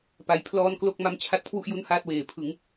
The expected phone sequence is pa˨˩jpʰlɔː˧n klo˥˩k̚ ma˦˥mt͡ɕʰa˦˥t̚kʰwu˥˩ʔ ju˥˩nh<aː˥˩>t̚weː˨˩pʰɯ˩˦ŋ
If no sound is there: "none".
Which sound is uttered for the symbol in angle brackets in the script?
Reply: aː˥˩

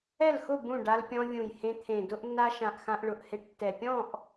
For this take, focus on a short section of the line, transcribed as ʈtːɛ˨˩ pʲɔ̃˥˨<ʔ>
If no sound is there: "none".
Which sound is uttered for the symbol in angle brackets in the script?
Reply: ʔ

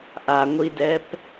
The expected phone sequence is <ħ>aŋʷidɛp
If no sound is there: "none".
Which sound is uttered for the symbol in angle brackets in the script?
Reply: ʔ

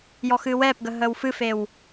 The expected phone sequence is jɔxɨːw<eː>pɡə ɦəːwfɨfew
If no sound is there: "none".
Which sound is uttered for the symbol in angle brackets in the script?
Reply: ɛː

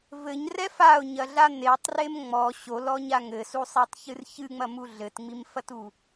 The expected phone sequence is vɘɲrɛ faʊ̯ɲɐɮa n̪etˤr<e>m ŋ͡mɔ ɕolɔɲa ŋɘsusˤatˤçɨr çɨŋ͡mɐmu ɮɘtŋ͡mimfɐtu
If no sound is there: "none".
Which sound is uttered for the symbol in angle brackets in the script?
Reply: e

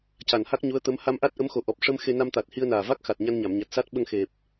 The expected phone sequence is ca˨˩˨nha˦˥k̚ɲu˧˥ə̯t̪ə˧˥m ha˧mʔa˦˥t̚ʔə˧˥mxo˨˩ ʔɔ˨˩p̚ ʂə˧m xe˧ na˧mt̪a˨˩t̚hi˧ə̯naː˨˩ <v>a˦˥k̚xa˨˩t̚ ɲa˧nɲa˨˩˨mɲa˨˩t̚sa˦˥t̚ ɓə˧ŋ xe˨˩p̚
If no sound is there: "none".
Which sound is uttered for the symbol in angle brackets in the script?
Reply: v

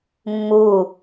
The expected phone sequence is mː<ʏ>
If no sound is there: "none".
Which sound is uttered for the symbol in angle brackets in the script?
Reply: u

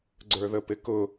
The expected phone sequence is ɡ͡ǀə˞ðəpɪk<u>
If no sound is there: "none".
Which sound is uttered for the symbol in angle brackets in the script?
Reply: ʊ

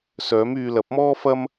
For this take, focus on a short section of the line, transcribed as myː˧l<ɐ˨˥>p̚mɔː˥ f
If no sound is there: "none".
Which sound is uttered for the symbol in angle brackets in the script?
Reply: ɐ˨˥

